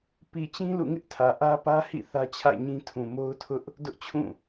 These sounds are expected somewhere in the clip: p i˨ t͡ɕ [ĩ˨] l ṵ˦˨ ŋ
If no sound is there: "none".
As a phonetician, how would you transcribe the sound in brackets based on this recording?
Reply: ĩ˦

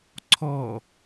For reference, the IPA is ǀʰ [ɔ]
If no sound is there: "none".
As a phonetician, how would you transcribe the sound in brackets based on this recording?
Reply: ɔ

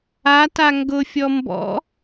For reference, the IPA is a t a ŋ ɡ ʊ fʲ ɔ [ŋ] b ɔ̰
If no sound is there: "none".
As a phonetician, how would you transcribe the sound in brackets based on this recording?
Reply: m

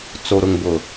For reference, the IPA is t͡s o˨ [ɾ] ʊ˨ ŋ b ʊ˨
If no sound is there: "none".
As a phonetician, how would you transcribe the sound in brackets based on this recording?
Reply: ɾ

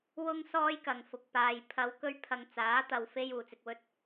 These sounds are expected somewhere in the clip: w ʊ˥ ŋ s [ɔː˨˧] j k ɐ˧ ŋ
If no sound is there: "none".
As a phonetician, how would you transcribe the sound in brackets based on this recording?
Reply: ɔː˥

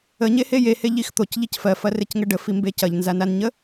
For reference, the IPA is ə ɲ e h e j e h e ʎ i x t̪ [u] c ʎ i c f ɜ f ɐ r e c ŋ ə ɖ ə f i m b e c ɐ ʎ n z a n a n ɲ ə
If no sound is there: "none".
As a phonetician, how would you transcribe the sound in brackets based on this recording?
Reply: o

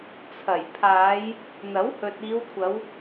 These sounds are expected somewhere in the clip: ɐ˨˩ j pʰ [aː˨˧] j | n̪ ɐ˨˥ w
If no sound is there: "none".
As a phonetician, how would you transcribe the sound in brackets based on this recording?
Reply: aː˨˧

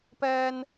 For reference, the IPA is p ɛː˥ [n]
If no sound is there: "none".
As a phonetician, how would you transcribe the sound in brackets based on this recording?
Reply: n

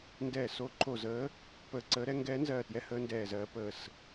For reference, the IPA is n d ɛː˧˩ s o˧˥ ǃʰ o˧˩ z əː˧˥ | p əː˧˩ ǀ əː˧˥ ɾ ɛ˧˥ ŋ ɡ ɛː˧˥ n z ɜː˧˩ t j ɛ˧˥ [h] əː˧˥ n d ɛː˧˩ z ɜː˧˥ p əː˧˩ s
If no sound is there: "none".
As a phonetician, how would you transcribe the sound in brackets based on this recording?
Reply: h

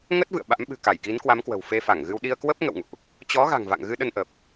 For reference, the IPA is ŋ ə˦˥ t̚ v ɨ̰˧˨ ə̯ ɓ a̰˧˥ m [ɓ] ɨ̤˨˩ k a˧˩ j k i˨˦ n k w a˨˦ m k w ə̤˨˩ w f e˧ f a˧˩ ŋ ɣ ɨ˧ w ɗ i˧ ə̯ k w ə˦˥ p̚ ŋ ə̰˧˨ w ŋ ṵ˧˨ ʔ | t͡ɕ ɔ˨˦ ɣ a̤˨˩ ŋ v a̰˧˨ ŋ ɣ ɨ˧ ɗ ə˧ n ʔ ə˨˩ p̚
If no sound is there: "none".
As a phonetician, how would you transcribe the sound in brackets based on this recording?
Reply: ɓ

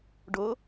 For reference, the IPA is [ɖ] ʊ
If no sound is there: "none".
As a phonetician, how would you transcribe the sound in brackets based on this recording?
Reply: ɖ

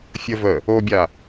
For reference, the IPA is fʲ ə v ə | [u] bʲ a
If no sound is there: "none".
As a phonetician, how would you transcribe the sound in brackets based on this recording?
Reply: o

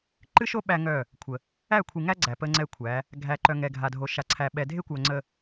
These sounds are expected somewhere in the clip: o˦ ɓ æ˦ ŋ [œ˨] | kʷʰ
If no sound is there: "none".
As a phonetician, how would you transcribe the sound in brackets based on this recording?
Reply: œ˦˨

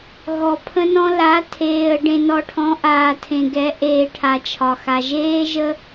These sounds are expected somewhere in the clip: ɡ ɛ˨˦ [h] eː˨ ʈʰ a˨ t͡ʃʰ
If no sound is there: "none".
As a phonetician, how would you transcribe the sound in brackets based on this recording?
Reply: ʔ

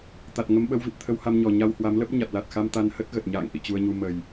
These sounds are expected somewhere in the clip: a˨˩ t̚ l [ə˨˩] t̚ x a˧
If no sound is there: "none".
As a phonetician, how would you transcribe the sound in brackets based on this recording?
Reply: a˨˩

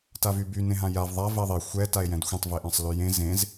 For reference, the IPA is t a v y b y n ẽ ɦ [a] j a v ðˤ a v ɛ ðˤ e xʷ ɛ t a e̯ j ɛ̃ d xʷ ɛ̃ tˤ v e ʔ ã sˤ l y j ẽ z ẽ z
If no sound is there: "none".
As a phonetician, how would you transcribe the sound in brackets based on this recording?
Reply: ã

